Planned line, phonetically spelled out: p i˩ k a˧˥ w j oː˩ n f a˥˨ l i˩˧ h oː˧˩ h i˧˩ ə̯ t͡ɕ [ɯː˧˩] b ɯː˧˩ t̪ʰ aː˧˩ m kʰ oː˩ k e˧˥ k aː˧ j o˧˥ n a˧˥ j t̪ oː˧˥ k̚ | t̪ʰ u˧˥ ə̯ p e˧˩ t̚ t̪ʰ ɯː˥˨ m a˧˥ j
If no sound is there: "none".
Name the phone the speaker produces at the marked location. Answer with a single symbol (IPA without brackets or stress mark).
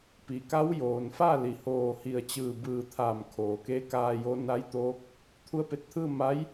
ɯː˧˩